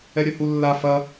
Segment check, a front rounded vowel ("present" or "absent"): present